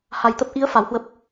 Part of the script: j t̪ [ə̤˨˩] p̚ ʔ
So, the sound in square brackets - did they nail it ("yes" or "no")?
no